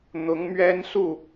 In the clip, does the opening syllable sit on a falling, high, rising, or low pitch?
rising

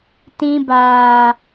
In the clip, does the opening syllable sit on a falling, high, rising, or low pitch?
high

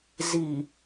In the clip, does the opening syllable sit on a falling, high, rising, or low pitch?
low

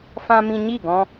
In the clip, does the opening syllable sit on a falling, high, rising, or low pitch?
high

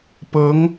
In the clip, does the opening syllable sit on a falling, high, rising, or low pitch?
rising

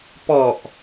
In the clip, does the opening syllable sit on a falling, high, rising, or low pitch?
low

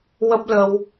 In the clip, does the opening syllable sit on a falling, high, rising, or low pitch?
high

